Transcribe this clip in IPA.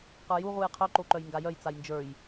q ə˞ j u ʁ u j qʰ œ ǃ o ǃ œ j ŋ ɡ a j œ j t͡s a j n d͡ʒ ə˞ j

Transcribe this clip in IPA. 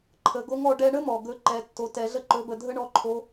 ǃʰ ə˩˧ ɡ o˧˥ ŋ ɔ˩˧ ɖ ɛ˧ ɳ ə˥ m ɔ˩ ɡ ɵ˧˥ ǃ ɛ˩˧ tː o˩˧ t ɛ˩˧ ɮ ə˥ ǃ ɵ˩˧ b ə˩ dʱ ə˥ ɳ ɔ˧˥ ǃʰ o˧˥

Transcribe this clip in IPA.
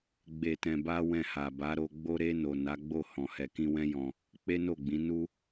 ɡ͡b e˨ t ɛ̃˨ b a˧ w ɛ̃˧ h a˨ b a˨˦ ɾ o˧ ɡ͡b o˧ ɾ e˧ n o˨ n a˨˦ ɡ͡b o˦˨ h ɔ̃˨ h ɛ˨ k ĩ˧ w ɛ̃˦ j ɔ̃˧ | k͡p e˦ n o˦˨ ɡ͡b ĩ˨˦ n u˦

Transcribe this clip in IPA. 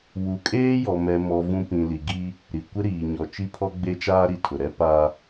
w u˨ kʼ eː˦ j ɔ˨ m ɛ˨ m ɔ˨ v ũ˦ p ĩ˨ l i˨ ɡ i˦ | ɾ i˨ kʷ ɪ˦ ɾ iː˨ ɲ ɔ˨ t͡ʃ i˦ pʰ ɔ˦ ɡ͡b e˦ t͡ʃ aː˦ ɾ i˨ tʰ ʊ˨ ɾ ɛ˦ p a˦

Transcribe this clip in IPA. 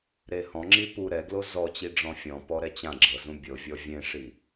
ɾ e h ɔ̃ ŋ͡ǁ i p u ɾ ɛ ɡ l o z ɔ t͡ɕ i ɖ͡ʐ ɔ̃ fʲ ɔ̃ p ɔ ɾ ɛ t͡ɕ ã ɡ͡ǁ ɤ z ũ bʲ ɤ vʲ ɔ vʲ ẽ ʂ i

